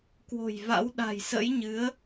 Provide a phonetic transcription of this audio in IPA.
kwo̤˨˩jva̰˧˥w ɗa̤˨˩jsə̰˧˥jɲɨ˨˦ə̯

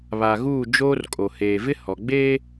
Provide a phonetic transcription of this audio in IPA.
βa˨ɣuː˦˨ d͡ʒoː˦rkʼo˨ heː˨vɪ˦ hɔ˨ɡ͡beː˦

